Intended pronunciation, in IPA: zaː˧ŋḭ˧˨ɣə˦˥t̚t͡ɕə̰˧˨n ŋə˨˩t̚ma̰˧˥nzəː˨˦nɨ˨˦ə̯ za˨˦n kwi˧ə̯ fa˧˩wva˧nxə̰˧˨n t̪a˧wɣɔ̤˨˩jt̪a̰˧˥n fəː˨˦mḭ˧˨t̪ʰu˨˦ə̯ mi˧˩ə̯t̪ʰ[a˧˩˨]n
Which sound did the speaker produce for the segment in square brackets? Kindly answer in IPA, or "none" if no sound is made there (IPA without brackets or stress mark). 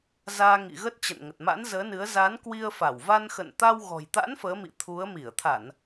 a˧˩˨